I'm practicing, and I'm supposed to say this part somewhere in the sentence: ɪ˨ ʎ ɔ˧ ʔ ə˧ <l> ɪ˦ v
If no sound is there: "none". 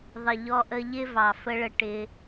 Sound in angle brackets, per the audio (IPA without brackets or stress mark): ʎ